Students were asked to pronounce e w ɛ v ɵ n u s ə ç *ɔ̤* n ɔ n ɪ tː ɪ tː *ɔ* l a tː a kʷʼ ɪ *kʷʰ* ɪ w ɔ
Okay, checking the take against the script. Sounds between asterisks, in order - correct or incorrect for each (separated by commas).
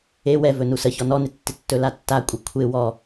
incorrect, incorrect, correct